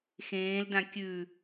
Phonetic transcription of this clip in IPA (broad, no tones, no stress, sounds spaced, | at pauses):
x ẽː l d ã kʲ ʉ